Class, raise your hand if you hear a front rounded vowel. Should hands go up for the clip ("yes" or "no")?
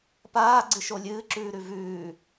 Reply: no